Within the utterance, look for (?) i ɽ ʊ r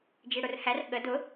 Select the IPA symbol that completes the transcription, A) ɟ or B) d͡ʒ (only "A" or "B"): B